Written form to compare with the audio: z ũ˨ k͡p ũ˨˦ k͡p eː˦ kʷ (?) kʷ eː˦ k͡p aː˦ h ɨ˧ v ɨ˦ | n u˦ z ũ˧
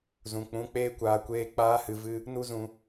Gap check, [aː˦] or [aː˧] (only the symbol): aː˧